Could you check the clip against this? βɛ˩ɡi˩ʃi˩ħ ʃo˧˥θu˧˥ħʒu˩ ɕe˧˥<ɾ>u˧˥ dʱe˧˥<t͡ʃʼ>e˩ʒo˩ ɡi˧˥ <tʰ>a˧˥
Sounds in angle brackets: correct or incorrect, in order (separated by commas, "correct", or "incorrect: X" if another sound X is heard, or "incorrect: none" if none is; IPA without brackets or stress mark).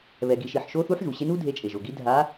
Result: incorrect: n, correct, incorrect: dʱ